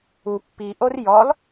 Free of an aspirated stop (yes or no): yes